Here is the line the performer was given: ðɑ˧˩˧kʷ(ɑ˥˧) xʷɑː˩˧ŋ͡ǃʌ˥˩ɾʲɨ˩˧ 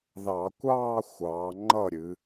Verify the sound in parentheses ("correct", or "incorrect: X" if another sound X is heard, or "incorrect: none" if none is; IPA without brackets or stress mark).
incorrect: ɑː˥˧